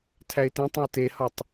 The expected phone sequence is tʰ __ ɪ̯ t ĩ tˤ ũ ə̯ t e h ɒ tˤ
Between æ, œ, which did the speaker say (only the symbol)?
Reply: æ